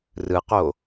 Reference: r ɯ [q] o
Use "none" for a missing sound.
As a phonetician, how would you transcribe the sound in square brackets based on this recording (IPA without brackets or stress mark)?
q